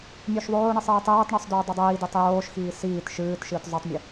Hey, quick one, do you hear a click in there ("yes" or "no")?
no